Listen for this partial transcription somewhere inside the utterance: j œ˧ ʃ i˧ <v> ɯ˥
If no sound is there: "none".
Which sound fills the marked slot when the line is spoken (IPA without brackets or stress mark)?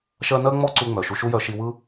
w